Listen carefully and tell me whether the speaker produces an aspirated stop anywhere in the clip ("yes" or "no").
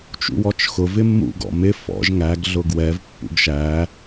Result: no